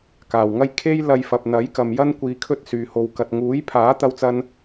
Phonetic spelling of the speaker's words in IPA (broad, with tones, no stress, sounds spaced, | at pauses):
k aː˨˩ w ŋ ɐ˥ j kʰ e˥ j l ɐ˧ j f ɐ˨ p̚ n̪ ɐ˨˥ j k ɐ˨ m j ɐ˥ n kʷ iː˧ kʰ ɵ˥ t̚ s yː˨ h o˨ w k ɐ˨ t̚ ŋ uː˨˥ j pʰ aː˨˥ t̪ ɐ˥ w t͡s ɐ˥ n